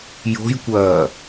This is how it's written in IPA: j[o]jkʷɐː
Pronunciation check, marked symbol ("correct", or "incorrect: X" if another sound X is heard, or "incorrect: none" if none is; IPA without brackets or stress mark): incorrect: o̤